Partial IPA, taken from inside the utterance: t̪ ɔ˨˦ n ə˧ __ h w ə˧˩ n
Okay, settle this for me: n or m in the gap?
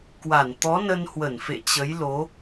n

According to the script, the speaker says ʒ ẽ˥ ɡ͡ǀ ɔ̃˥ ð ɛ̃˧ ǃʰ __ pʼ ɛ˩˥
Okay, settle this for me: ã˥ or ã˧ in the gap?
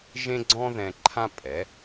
ã˥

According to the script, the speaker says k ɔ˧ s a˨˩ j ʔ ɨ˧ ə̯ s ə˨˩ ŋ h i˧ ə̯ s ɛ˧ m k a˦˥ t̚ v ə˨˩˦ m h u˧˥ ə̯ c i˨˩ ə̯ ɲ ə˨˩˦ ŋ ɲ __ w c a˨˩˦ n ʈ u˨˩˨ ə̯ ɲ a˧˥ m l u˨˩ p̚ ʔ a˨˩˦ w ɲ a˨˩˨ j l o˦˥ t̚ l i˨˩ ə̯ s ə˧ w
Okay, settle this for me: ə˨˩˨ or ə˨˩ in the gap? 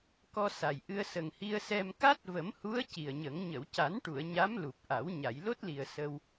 ə˨˩˨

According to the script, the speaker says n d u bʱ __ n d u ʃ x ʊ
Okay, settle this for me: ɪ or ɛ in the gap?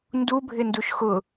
ɪ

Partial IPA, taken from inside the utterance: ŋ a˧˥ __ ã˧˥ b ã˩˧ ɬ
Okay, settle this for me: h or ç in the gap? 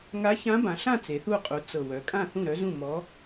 ç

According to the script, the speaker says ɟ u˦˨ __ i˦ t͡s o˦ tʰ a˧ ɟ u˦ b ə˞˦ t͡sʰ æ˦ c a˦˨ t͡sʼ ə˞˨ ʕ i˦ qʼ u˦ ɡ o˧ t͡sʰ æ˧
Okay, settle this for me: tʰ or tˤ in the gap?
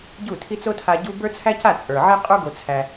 tʰ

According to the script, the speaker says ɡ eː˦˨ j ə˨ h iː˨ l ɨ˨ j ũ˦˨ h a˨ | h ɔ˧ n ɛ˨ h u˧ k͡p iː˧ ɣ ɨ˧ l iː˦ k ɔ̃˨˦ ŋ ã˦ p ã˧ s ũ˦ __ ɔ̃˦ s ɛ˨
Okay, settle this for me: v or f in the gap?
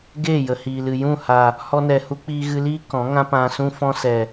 f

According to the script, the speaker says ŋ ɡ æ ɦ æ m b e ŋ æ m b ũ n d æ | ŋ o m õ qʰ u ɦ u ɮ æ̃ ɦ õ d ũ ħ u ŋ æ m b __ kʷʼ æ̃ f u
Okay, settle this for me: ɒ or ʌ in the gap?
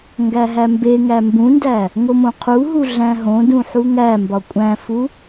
ɒ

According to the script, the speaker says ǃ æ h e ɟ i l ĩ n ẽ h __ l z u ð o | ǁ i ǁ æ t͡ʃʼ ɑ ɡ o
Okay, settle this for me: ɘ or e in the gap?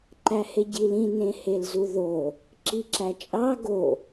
e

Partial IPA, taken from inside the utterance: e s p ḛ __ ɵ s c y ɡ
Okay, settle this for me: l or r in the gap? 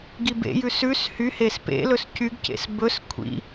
l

